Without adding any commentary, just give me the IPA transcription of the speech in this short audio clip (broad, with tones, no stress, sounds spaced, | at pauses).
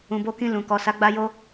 ũ˨ b o˧ k ĩ˧ l ũ˨ k ɔ˨ s a˨˦ ɡ͡b a˧ j o˦